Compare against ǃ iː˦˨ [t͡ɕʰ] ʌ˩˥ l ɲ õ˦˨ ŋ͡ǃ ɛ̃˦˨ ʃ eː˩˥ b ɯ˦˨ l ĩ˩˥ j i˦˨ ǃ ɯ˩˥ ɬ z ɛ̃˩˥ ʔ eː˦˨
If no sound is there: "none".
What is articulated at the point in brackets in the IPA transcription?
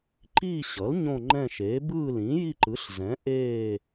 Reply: ɕ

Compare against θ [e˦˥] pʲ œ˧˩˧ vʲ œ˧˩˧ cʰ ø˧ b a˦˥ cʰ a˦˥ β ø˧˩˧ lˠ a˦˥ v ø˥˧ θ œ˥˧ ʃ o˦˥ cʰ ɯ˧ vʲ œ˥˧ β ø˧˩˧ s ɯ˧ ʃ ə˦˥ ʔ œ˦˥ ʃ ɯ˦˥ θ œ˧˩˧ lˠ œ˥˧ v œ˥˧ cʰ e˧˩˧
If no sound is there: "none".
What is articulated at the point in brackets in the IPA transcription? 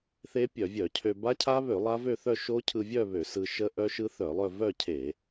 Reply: e˦˥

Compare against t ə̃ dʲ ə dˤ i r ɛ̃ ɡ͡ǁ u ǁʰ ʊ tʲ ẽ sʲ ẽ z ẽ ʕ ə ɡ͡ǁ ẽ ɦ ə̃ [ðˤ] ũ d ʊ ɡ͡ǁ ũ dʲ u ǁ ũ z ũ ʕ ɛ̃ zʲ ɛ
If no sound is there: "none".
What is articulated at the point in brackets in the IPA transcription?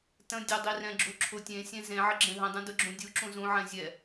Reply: dˤ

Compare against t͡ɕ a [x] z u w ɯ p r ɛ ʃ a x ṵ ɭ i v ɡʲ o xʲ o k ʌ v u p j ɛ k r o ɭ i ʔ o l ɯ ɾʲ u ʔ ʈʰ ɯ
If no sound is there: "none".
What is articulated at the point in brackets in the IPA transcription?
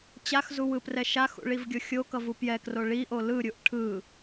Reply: x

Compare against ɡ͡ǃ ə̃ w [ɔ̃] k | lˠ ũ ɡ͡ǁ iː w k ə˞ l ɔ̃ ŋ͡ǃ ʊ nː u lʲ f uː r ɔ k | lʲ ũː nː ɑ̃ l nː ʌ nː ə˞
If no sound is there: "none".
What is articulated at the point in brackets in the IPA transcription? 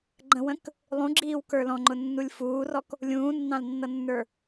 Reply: ə̃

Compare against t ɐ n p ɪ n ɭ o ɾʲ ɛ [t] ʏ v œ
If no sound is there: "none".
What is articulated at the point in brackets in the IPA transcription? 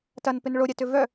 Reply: t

